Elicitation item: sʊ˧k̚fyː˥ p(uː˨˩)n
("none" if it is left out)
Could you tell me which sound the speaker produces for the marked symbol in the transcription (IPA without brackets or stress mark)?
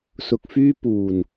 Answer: uː˨˩